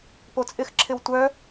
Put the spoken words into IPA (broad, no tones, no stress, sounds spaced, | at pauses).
p o t͡sʼ ɪ x ǁʰ ɪ w tʷ œ